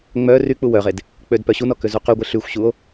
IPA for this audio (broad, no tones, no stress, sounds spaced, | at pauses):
ŋ͡m œ r y k͡p u w œ ʁ e d | k͡p ø d p œ ɕ u n ɔ k ø z u q y ɡʷ e ɬ y xʷ ɕ u o̯